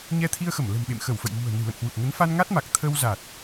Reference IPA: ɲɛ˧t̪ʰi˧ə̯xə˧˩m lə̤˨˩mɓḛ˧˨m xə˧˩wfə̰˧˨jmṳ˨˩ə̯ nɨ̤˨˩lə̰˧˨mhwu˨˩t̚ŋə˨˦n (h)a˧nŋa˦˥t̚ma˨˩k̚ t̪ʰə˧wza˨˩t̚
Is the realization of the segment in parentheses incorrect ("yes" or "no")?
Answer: yes